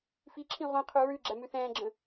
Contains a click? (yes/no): yes